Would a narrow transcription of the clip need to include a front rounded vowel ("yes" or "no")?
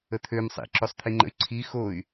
yes